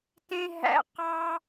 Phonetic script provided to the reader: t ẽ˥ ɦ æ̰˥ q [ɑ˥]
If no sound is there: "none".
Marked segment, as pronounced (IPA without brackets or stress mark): ɑ˥